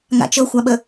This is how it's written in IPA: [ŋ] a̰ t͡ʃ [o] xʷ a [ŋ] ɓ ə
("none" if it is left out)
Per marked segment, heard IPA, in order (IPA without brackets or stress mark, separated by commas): ŋ, ɤ, none